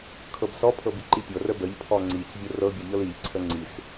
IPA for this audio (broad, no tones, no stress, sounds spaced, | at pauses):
kʰ ɤ b s ɔ pʰ ɤ b i ǃ i pʲ ɤ r ə b ə ʎ pʰ ɔ ŋ͡ǀ i c vʲ ə r ɤ bʲ ɤ ʎ ɤ l i ʎ ǀʰ ə ŋ͡ǀ i s